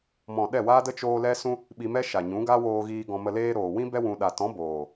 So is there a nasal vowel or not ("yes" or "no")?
yes